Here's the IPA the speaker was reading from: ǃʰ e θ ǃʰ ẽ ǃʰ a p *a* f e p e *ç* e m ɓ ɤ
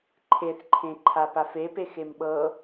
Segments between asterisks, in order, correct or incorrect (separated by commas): correct, incorrect